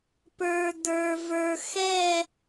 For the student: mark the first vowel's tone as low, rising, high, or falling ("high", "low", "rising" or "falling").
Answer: low